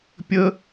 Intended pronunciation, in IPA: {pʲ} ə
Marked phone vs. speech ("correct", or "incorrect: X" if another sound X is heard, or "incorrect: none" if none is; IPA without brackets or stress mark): correct